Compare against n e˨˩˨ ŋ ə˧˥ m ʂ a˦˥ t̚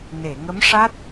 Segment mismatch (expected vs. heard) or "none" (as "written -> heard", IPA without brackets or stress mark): none